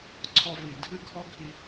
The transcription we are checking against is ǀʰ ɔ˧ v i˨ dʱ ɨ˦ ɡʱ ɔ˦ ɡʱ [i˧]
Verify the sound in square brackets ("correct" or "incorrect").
correct